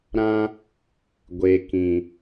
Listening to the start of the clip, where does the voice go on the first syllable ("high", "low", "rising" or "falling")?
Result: high